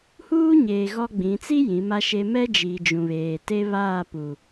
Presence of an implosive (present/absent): absent